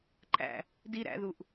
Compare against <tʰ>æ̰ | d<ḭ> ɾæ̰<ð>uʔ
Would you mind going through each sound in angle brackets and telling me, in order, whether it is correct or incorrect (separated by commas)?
incorrect, incorrect, correct